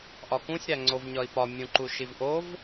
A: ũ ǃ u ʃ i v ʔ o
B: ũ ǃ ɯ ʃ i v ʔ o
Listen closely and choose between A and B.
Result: A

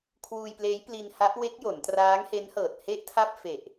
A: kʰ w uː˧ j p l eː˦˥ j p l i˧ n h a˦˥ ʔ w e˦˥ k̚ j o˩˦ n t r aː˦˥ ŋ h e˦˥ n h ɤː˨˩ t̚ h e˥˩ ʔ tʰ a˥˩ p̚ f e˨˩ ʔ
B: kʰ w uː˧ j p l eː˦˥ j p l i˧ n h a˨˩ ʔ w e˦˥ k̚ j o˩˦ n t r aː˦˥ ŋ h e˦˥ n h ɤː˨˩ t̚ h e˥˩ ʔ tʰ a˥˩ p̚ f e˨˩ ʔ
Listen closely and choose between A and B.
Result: A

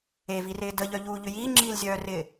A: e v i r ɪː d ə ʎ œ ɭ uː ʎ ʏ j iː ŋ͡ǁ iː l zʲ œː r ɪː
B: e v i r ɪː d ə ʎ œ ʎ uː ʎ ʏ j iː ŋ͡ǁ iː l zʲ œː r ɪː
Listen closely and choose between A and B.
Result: B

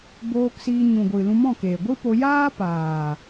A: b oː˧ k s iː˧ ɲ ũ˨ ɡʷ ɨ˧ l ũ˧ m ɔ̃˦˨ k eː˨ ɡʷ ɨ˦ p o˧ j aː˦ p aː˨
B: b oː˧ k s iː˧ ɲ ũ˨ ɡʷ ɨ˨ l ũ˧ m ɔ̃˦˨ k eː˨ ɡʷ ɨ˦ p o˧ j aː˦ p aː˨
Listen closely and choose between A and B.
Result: B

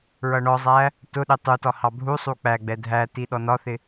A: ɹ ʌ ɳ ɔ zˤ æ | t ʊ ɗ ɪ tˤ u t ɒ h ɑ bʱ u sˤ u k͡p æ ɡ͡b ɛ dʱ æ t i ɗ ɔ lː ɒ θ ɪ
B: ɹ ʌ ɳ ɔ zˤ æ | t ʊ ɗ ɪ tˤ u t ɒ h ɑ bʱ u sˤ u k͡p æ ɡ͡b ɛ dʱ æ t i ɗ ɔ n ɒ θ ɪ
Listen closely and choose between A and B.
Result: B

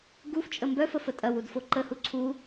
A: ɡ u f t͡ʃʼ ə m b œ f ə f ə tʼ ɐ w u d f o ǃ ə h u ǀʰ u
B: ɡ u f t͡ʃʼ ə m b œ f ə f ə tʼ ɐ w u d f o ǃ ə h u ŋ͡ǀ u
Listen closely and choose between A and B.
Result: A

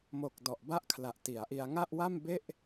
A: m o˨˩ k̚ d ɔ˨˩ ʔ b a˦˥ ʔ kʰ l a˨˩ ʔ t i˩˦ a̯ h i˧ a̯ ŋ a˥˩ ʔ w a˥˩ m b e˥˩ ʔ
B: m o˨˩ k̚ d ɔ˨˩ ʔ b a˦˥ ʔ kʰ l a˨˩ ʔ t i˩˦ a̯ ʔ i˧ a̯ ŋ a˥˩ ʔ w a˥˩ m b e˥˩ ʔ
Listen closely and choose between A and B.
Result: B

